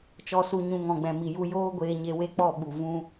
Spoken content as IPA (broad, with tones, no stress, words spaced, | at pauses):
t͡ʃɔ˧su˧ɲũ˧ ŋɔ̃˨ɡ͡bɛ̃˨mi˨ju˧ joː˦ɡʷeː˧ɲe˧ we˦k͡pɔ˦˨ɓu˨ vũ˦